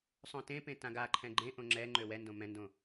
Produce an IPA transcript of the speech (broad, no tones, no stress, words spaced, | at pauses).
sˤõtẽpẽ tãɡaǃʰɛ̃ ɡ͡ǃẽʔõ ŋ͡ǁɛ ŋ͡ǃøwɛndõ mɛ̃ndõ